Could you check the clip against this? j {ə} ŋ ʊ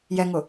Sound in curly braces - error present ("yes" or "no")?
yes